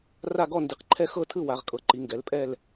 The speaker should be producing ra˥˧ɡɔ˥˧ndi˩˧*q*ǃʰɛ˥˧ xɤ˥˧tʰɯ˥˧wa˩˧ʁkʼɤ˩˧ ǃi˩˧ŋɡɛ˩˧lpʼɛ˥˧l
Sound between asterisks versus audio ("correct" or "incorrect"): correct